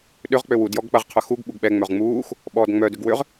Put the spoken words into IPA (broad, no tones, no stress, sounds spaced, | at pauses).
ɗ ʏ ʁ k͡p ø w u d j ɔ ɡ k͡p ɐ ʁ qʰ œ x u ɡ ɓ u ɡ ɓ ɛ ŋ͡m œ ʁ ŋ͡m uː x | ɓ ɔː d ŋ͡m œ d ʏ ɡ w ʏ ʁ